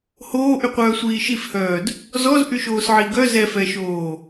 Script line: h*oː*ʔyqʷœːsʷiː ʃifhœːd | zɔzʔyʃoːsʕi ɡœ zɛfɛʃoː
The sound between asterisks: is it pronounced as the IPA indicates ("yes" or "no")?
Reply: yes